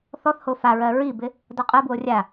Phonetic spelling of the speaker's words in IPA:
θ ɔ θ h o f a ɹ ɜ ɹ i b ɪ | d ɔ qʼ ɜ b w o rʲ a

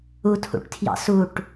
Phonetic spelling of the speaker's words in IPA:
u tʰ ṵ ʈ tʰ j ɑ̰ s u ʈ

